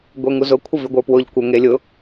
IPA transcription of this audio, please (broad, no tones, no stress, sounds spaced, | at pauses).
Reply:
ɡʷ e ŋ u z ʊ kʷʰ ə v y ɡʷ ə˞ p w ʊ ʎ kʷ ə ŋ e lʲ ʊ